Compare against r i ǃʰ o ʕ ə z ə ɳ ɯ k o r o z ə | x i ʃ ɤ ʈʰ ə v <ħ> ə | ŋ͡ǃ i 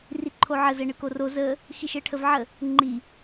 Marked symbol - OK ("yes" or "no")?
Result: no